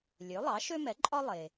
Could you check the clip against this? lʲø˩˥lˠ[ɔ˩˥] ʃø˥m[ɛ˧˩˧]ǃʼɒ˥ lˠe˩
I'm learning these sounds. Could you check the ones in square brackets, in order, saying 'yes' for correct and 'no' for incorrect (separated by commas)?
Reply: no, no